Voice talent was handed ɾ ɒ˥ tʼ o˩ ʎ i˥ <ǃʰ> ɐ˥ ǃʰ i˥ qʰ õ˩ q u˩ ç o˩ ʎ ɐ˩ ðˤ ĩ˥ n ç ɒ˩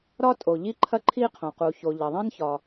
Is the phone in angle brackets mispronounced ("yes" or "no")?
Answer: no